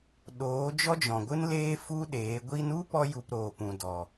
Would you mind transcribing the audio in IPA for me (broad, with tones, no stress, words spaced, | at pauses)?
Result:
ɗoː˨˦ d͡ʒɔ˦d͡ʒɔ̃˨ɡʷɨ˦n leː˦fu˦ɗeː˨˦ ɡʷi˧nu˦ pɔ˦ju˧p ɾoː˨pũ˨ dɔ˨